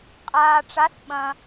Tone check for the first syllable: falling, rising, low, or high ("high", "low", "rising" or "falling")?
low